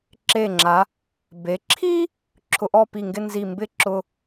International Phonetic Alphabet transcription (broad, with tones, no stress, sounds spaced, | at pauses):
ǁ e˧˩ ŋ͡ǁ a˩˧ | b e˩˧ ǁʰ i˥ | ǁʰ ʊ˧ ʔ ɔ˥˧ p i˧˩ ŋ ɡ ɪ˥˧ n z i˧˩ m b ɪ˥ ǁ ʊ˧